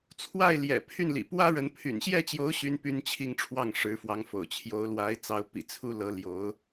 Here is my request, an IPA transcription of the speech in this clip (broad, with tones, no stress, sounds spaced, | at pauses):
t͡sʰ w a˥˩ ɪ̯ l j ɛ̰˨˩ pʰ y˥˩ n l ḭ˨˩ p w ä˥ ɻ ə˧˥ n pʰ y̰˨˩ n ɕ j ɛ˥˩ t͡ɕ j o˧˥ ʊ̯ ɕ y˥ n p y˥ n t͡ɕʰ i˥˧ ŋ ʈ͡ʂʰ w ɑ˥˩ ŋ ʂ ɻ̩˧˥ f w ɑ˧˥ ŋ f o̰˨˩ ʊ̯ t͡ɕʰ j o˧˥ ʊ̯ l w a˧˥ ɪ̯ t͡s ɑ˧˥ ʊ̯ p ḭ˨˩ t͡sʰ u˥ l ɤ˧˥ l j o˧˥ ʊ̯